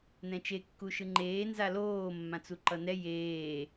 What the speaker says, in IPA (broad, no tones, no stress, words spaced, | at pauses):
nɛ̃t͡ʃe kːuʃɯŋ͡ǃeː nzaloː mːãt͡suǃʌnɛ jeː